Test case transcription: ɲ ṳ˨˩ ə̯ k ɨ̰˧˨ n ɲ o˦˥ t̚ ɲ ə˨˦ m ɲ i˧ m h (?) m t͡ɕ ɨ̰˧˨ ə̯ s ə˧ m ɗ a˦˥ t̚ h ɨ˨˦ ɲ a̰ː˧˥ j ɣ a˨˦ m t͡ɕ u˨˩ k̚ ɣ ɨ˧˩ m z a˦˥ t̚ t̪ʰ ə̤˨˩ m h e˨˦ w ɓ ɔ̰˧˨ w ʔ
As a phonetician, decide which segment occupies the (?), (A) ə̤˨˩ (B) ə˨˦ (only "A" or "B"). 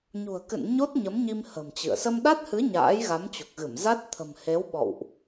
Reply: A